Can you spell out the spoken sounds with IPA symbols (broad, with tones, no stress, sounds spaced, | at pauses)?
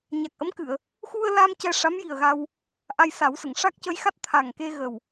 ɲ a˨˩ k̚ ʔ ə˧˥ m k ɨ˨˩˨ ə̯ | x u˧ ə̯ l a˧ m c ɛ˧ ʂ a˧˥ m j i˨˩ ə̯ ɣ a˧ w | ʔ a˧ j s a˨˩˦ w s ə˨˩˨ ŋ ʂ a˦˥ k̚ c ə˧˥ j x a˦˥ t̚ t̪ʰ a˨˩ ŋ k e˧ ɣ ə˨˩ w